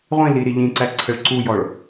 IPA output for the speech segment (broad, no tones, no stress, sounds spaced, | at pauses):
ʁʷ ĩ l i ɾ i ʎ ĩ ǀ æ ǀʰ ə ɭ ǀ u j ɔ ɭ